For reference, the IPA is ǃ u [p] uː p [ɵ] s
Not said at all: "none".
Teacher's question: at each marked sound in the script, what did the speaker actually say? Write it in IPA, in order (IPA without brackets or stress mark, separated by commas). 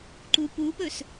p, ɵ